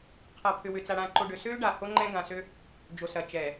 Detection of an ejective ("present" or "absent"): absent